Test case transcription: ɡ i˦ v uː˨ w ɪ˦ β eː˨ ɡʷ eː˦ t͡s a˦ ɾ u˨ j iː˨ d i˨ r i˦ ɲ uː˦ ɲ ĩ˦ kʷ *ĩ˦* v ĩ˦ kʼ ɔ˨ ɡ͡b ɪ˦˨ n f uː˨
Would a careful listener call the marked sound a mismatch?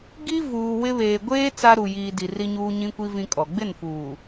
yes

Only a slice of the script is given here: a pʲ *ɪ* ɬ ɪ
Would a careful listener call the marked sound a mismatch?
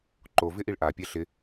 yes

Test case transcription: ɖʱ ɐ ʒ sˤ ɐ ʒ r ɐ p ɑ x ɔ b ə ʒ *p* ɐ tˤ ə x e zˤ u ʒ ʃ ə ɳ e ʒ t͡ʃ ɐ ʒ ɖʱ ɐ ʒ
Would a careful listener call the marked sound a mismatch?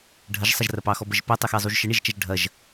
no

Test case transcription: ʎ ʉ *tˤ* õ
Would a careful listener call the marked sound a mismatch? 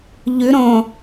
yes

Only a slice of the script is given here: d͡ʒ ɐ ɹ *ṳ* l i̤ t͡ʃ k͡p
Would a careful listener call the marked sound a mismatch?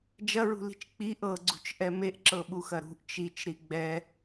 no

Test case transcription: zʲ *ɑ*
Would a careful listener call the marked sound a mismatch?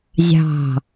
yes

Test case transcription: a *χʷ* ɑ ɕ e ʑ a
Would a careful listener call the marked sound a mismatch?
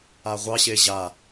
yes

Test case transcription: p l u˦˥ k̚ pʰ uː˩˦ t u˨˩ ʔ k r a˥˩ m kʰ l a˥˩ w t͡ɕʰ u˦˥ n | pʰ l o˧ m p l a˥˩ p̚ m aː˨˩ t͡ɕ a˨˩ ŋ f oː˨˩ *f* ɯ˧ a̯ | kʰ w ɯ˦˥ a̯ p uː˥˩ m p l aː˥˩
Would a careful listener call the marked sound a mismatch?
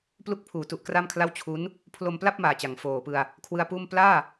yes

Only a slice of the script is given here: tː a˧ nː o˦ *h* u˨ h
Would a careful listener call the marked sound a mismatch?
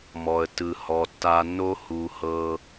no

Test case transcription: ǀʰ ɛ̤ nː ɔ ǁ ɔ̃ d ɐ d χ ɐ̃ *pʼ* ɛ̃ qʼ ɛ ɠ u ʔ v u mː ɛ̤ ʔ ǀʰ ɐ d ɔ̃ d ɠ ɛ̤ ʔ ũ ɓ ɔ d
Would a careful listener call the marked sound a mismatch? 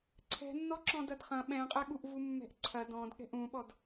yes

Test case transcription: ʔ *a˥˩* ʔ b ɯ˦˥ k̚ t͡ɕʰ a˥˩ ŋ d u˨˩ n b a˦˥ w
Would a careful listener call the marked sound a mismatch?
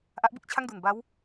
yes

